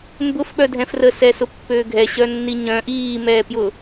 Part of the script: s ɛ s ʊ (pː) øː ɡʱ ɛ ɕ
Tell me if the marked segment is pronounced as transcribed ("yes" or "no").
yes